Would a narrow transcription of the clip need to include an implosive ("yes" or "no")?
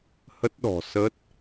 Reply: yes